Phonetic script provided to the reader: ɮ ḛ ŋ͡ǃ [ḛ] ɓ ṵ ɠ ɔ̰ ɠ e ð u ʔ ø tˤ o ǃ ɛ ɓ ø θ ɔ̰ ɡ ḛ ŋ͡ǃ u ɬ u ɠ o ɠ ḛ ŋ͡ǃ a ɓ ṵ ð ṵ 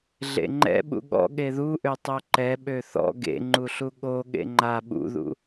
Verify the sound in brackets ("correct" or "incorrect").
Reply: incorrect